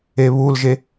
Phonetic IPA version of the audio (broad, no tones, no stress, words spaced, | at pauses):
eβulʒe